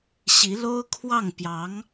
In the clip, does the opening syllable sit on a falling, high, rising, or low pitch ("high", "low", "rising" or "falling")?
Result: rising